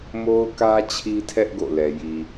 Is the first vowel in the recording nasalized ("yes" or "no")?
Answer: no